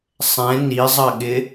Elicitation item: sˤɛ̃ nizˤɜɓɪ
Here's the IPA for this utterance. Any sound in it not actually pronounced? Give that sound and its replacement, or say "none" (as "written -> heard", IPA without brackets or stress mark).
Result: ɓ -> ɠ